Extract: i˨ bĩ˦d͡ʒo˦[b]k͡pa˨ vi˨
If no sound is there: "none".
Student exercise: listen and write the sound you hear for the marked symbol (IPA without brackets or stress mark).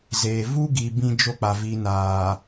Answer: none